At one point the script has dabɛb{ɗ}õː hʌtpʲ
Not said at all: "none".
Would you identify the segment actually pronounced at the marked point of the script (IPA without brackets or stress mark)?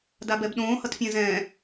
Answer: ɗ